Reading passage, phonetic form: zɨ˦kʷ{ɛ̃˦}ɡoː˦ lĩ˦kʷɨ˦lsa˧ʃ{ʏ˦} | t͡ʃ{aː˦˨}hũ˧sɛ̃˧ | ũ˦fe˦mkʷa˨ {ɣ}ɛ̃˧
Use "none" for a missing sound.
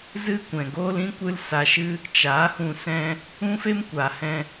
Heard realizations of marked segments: ɛ̃˨, ɨ˦, aː˨˦, h

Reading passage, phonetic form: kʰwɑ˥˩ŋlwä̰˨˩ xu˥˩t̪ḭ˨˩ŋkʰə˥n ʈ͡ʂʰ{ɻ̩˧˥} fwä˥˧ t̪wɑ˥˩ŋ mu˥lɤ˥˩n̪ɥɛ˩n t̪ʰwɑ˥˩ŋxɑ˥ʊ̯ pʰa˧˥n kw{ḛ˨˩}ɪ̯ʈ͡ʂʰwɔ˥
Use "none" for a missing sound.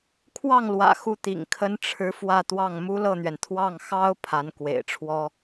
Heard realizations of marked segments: ɻ̩˧˥, ḛ˨˩

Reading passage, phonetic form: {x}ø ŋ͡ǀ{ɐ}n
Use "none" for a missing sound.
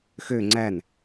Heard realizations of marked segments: x, æ

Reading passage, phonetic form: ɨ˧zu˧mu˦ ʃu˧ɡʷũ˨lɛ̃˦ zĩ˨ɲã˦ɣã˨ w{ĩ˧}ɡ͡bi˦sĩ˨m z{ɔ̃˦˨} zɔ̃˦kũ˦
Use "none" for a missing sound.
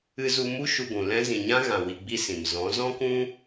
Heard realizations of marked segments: i˧, ɔ̃˨˦

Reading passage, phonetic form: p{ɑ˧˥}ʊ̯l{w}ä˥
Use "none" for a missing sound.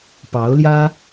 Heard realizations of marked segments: ɑ˧˥, j

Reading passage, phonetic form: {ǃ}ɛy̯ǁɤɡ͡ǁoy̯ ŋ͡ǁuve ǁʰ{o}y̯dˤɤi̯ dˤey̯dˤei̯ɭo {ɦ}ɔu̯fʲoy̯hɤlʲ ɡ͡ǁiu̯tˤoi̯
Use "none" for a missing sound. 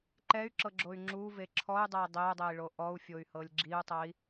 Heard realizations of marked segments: ǃ, ɔ, ʔ

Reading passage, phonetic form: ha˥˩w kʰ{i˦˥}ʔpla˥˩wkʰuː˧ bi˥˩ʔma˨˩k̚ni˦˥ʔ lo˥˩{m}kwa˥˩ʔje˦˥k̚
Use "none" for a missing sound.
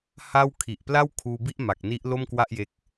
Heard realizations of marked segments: i˨˩, m

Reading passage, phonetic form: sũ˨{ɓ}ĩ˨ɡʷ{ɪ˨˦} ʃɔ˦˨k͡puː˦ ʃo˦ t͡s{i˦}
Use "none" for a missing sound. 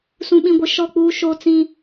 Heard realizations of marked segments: ɓ, ɪ˨, ĩ˦

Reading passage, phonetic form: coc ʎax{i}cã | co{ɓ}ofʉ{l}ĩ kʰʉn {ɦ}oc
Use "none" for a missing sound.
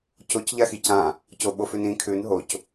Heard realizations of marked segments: i, ɓ, n, ɦ

